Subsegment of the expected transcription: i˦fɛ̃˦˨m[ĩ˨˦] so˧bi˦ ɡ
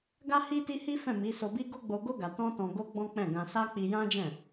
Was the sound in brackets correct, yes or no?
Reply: no